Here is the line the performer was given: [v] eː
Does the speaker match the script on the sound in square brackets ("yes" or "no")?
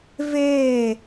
yes